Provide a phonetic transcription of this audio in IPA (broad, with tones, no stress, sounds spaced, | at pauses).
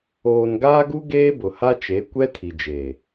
oː˨ n ɡ aː˦ ɡ u˦ ɡ eː˦ b ʊ˨ h a˦ t͡ʃ e˨˦ kʷ ɛ˦ tʰ i˨ d͡ʒ e˨